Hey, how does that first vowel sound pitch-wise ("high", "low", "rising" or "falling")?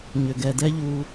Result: low